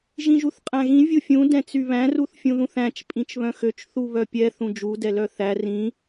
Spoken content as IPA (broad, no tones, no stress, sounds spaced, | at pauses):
ʒ ĩ ʒ u θ qʼ æ̃ ɣ ĩ vʲ u fʲ ũ d ɛ̃ t͡s y β æ̃ r u θ fʲ ũ ð ũ θ æ̃ t͡ʃ pʼ ĩ t͡ʃ β œ̃ x ø t͡ʃ θ u β œ pʲ ɛ θ ũ d͡ʒ u d ɛ l œ θ æ r ĩ